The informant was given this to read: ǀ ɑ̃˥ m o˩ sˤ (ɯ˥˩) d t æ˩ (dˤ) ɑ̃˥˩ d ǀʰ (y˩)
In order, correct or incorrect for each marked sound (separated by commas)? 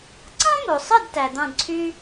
correct, incorrect, incorrect